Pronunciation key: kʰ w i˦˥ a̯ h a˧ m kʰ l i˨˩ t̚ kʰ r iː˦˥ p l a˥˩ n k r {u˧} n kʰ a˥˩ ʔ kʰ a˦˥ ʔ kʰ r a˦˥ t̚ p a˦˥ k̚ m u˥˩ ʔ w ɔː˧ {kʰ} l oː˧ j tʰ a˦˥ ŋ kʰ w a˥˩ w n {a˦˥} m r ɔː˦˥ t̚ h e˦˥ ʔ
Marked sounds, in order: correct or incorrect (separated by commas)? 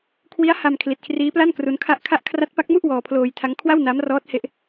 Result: incorrect, incorrect, correct